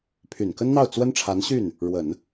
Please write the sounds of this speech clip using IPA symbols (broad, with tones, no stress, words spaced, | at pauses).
pʰy˨˩nkə˥nn̪ɑ˥˩ʊ̯ t͡swə˥nʈ͡ʂʰa˧˥nɕy˥˩n | ɻwə˨˩˦n